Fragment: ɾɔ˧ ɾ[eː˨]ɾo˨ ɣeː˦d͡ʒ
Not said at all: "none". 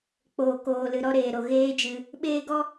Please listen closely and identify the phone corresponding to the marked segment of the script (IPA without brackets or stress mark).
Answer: eː˨